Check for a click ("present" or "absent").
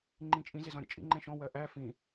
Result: present